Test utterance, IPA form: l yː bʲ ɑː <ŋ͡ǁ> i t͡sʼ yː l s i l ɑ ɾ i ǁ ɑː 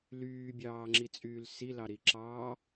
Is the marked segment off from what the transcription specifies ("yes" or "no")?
no